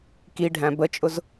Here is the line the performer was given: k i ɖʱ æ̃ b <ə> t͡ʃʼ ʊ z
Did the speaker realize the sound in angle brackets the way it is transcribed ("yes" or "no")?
yes